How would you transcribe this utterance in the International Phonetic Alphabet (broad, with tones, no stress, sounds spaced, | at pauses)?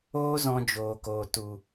oː˦ z ɔ̃˧ d͡ʒ oː˨ k oː˨ t u˨